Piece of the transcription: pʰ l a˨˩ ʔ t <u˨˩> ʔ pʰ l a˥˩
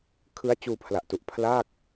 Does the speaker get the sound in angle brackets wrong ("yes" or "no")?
no